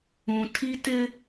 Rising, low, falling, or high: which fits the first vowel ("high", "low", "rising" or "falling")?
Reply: low